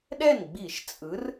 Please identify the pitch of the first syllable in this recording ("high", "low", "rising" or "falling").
falling